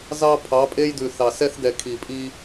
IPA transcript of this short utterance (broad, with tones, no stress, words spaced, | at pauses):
zɑ˦pʰɑ˨˦pʼe˦jdʉ˨ θɑ˨sɛ˦θ dɛ˨ kʰi˨pʼi˦